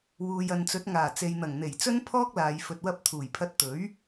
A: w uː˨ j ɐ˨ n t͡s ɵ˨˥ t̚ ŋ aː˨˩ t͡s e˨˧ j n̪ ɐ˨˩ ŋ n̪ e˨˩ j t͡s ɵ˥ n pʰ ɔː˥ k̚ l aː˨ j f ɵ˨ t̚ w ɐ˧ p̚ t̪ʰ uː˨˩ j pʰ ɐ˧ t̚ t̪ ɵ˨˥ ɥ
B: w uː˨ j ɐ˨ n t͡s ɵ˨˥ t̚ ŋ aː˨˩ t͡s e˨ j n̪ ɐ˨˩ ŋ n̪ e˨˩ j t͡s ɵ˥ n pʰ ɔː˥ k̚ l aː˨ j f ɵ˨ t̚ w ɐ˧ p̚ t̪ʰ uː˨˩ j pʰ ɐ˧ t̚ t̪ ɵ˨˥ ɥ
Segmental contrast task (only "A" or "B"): B